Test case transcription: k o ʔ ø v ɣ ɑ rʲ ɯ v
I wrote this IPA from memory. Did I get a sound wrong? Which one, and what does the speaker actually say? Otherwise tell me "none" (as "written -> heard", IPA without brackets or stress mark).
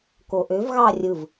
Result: none